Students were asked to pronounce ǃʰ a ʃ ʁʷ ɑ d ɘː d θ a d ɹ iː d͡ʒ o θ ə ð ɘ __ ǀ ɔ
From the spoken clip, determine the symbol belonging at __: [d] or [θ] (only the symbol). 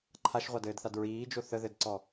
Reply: d